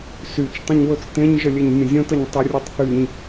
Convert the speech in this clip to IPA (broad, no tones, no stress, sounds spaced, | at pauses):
s y t͡ʃ tˤ ə̃ ɲ w ɵ t͡s t ẽ ɲ ʒ ə lʲ e ɲ nʲ ə̃ zʲ ə̃ t ə ɲ tˤ u rʲ u tˤ θ y ɲ